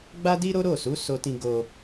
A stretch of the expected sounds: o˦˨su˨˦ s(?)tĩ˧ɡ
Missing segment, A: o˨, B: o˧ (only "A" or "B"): B